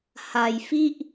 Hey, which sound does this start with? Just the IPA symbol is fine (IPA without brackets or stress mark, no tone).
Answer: h